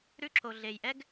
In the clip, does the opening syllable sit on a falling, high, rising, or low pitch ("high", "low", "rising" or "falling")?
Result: high